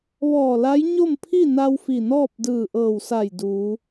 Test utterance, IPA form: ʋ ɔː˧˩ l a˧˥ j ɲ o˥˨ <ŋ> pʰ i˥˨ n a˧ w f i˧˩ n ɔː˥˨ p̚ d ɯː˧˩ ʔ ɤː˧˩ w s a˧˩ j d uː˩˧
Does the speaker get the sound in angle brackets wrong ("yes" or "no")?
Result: yes